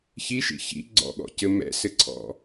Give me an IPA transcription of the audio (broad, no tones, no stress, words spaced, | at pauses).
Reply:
çiʃḭ çḭ ɡ͡ǀɔ̰ɠɔ̰cɘ mɛ̰sɘǀʰɔ̰